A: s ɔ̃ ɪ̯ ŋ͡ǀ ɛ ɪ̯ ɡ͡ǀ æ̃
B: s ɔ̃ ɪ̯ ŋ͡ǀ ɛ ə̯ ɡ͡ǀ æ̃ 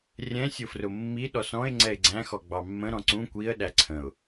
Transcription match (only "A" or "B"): A